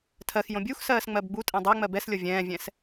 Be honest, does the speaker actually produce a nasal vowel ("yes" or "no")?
yes